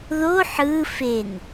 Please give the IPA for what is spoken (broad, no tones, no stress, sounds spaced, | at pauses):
ð o ħ ɯ f e n